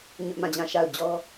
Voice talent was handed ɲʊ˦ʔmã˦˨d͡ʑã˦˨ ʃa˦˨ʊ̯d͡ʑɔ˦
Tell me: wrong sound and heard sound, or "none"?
none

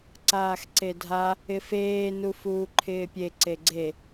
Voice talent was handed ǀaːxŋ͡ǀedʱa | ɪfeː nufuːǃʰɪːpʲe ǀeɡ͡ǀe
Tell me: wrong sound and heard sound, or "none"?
ŋ͡ǀ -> ǀ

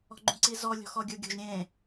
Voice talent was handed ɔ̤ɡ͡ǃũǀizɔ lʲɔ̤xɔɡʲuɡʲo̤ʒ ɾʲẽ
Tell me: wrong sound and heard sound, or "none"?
none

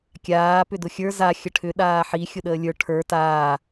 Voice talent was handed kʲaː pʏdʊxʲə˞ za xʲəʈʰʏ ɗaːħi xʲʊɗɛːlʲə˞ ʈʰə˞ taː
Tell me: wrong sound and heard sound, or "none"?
ɛː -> əː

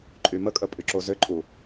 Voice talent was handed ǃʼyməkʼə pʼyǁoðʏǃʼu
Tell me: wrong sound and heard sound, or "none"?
ð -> z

